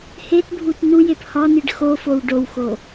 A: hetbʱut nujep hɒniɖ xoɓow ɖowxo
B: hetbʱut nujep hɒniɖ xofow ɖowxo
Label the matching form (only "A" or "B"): B